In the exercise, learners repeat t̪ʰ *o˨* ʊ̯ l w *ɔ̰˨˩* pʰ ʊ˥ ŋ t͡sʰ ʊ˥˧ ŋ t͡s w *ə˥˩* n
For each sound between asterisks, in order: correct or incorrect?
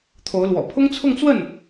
incorrect, correct, correct

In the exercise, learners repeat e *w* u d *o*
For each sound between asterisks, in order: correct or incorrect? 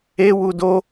correct, correct

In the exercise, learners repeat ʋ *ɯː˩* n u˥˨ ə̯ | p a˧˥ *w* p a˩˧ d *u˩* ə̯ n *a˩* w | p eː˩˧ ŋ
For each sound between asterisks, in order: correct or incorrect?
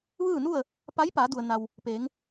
incorrect, incorrect, correct, correct

